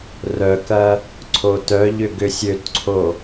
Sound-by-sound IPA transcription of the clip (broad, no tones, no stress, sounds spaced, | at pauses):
r œ k ɐ | ǀʰ o t œ ʎ ʏ ɡ ʏ sʲ ø t ǀʰ o